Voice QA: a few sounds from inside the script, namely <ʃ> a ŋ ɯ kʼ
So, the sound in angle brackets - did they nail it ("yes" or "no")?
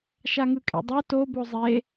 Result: yes